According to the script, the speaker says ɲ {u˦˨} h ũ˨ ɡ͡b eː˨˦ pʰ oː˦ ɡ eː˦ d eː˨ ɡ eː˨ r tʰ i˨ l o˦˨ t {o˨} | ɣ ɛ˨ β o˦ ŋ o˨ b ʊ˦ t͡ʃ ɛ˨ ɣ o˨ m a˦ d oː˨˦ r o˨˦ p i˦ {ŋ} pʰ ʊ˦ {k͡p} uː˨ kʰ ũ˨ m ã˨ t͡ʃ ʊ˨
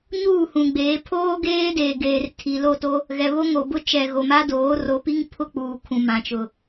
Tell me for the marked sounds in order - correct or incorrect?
incorrect: uː˦˨, incorrect: o˦, correct, correct

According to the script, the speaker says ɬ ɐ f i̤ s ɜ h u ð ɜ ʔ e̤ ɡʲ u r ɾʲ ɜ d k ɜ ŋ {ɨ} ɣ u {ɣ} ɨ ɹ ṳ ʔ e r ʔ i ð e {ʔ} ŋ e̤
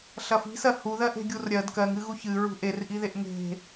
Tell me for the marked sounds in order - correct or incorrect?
correct, incorrect: ç, correct

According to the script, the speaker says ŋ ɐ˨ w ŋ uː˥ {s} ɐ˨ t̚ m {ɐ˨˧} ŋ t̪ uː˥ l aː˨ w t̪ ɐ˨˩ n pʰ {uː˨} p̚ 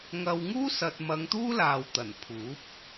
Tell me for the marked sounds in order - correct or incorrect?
correct, correct, incorrect: uː˨˥

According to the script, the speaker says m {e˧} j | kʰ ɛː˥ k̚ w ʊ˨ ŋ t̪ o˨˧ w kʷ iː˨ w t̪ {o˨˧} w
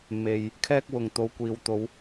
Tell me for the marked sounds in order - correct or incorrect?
incorrect: e˨, correct

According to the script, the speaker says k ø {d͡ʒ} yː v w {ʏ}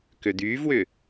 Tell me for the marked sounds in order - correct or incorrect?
incorrect: d̪, correct

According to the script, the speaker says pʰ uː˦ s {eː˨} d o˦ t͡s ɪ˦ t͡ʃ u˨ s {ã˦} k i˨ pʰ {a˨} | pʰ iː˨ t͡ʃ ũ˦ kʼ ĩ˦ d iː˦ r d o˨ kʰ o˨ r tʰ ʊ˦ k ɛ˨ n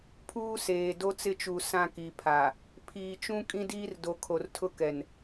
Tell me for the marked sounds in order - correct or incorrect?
correct, correct, correct

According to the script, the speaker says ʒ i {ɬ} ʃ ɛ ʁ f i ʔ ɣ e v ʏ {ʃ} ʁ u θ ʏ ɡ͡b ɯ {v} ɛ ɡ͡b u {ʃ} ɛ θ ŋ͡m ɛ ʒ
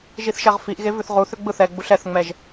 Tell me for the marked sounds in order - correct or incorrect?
incorrect: θ, incorrect: θ, incorrect: θ, incorrect: ɬ

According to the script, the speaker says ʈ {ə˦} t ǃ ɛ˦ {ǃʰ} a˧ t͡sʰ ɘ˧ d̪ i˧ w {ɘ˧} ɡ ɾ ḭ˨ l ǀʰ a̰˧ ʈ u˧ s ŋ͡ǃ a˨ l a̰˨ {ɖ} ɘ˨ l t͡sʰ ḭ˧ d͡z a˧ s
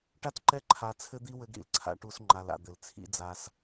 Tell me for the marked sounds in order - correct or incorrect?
incorrect: a˦, correct, correct, incorrect: d̪

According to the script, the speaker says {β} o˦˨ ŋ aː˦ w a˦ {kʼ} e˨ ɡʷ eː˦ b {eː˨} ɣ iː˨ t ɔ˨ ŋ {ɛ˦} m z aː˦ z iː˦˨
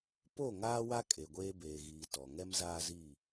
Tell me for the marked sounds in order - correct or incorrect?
incorrect: p, correct, correct, correct

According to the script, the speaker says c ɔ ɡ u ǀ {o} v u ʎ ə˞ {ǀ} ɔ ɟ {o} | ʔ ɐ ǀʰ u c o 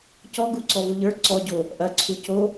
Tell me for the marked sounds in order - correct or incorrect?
incorrect: ɔ, correct, correct

